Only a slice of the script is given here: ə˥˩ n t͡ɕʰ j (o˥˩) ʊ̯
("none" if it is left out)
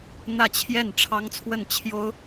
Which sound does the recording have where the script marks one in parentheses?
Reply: o˥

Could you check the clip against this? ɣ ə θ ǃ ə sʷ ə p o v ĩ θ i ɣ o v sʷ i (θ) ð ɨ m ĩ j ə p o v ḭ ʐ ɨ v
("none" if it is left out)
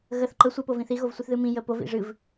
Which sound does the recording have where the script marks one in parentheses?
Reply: θ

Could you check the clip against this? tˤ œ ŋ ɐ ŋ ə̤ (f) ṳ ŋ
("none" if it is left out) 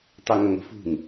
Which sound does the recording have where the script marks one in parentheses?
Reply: f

